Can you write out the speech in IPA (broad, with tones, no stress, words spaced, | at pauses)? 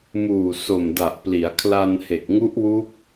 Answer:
muː˨˩so˨˩mda˨˩ʔ pli˩˦a̯kʰla˧n he˨˩k̚ŋu˦˥ʔ wu˦˥k̚